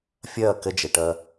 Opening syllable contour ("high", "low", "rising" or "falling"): falling